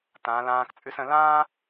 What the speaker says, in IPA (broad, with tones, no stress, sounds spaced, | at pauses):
t ãː˩˧ l ãː˧ k t͡sʼ ʉ˧ s ə̃˩˧ l ãː˥